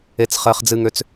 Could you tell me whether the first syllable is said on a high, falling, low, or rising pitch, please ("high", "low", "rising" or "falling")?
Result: high